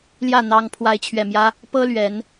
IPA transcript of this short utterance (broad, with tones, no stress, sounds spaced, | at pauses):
l j ä˥˩ n̪ ɑ˥ ŋ pʰ w a˥ ɪ̯ t͡ɕʰ ɥ ɛ˥˩ m j ä˥ | p ɤ˥ l ɥ ɛ˧˥ n